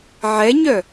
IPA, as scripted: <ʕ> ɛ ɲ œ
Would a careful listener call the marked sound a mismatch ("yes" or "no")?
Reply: no